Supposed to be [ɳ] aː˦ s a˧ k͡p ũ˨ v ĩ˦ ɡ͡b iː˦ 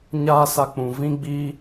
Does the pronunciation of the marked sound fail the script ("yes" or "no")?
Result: yes